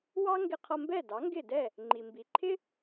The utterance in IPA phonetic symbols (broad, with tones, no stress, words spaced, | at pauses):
wɑ˥ŋɡɪ˧qʰʌ˧mbɛ˥˩ dɑ˩˥ŋɡɪ˥˩dɛ˥˩ | ŋ͡ǃi˩mbi˩ǃʰɪ˥